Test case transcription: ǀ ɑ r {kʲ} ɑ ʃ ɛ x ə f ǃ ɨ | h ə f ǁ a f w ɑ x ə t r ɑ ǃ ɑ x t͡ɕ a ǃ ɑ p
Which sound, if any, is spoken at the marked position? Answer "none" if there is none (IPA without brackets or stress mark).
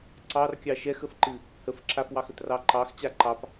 kʲ